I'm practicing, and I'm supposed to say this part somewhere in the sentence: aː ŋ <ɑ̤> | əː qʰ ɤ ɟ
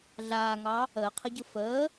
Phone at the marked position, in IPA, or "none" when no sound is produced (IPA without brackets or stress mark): ɑ